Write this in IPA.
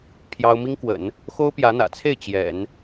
pʰ j ɑ˥ ʊ̯ m i˥ ŋ k w ə̰˨˩˦ n | x o˥ ʊ̯ p j ä˧˥ n̪ ä̰˨˩ t͡sʰ e˥˩ ɪ̯ t͡ɕ j ɛ̰˨˩˦ n

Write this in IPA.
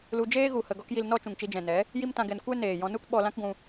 l u˧ d͡ʒ eː˦ ɣ u˧ h ə˧ ɡ ɔ˦ k j i˧ l n ɔ˦ t͡ʃ ũ˨ ŋ t͡ʃ i˧ d͡ʒ ɛ̃˨ n ɛ˨˦ | j i˦ m t ã˧ ɡ ɛ˧ n kʷ ɛ˦ n eː˨ j ɔ̃˧ n u˦ k ɓ ɔ˧ l ã˦ k ɡʷ ũ˧

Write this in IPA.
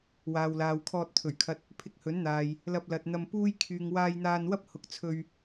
w aː˨ w l aː˨ w kʰ ɔː˧ t̚ t̪ʰ ɵ˨˩ ɥ kʰ ɐ˧ t̚ | pʰ ɪ˧ k̚ h ɵ˨˥ n n̪ aː˨ j | l ɐ˧ p̚ l ɐ˨ t̚ n̪ ɐ˧ m p uː˥ j kʰ yː˨ ŋ w aː˧ j n̪ aː˧ n w ɐ˥ p̚ h ʊ˨ k̚ t͡sʰ ɵ˧ ɥ

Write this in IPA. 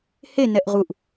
h e n ɛ ʔ ʁ u ʔ

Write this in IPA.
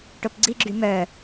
ʈ o p ɡ͡ǀ i ɡ͡ǁ y m œ

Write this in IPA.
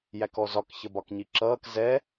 j æ k ɔ z ɒ k ç ə b ɒ k ɲ i ǁ ʌː k z ɛ

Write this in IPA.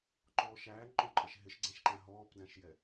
ǃ ɔː ʃ æː ŋ͡ǃ ɔ̃ ǃʼ ɛ ʃ ɦ ɪ ʃ ɡ͡ǀ ɛ̃ ʃ ǃ æ̃ ɦ ɔː p d æ̃ ʃ j ɛ

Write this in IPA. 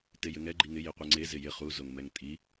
t e j ɘ ŋ ɛ ɡ͡ǃ i ŋ ɪ j i qʷ e ŋ͡ǀ e z ɪ j ɪ χ u z o ŋ m ɛ ŋ tʼ i

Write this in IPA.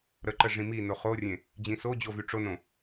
ɾ ə ǃ ə ʐ ĩ m i n o χ o rʲ ẽ | d͡ʑ ĩ s o d͡ʑ o v y ʈ͡ʂ o n õ

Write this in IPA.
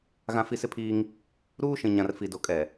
ɣ ã˨ f i˨ s ɪ˦ pʰ iː˦ ŋ | ɾ uː˦ ʃ ĩ˨ ɲ ã˨ r f i˨ d o˨ kʼ ɛ˨

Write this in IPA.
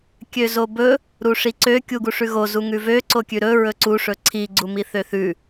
kʲ ø z o b ɵ | ɾ u ʂ i ǀ ø kʲ u ɡ u ʂ ʉ ɣ o z u ŋ ʉ v ø ǀ o kʲ ʉ ɾ ɵ ɹ ɵ ǀ u ʂ ɵ ǀʰ i ɡ͡ǀ u m i θ ø θ ʉ

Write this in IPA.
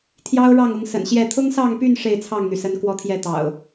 t̪ʰ j ɑ˦ ʊ̯ ɻ ɑ˥˨ ŋ ʊ˨˦ ŋ s ə̰˨˩ n ɕ j ɛ˥˨ t̪ʰ ʊ˦ ŋ s ɑ˥˨ ŋ p y˥˨ n ʂ e˥˨ ɪ̯ t͡sʰ ɑ˥˨ ŋ n̪ y˩ s ə˨˦ n k w ɔ˦ t̪ʰ j ɛ˥˨ t̪ ɑ̰˨˩ ʊ̯

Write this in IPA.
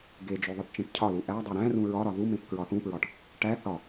ɡ e d͡ʒ o ðˤ i ʈ t͡ʃ ẽ ʈ cʰ ɒ l u ʔ æ dˤ o ɾ æ̃ r ũ ɹ ɒ ɾ ɒ ð u m ẽ p k ɹ ɒ θ ũ p ɹ ɒ ʈ | ʈ æ θ ɒ

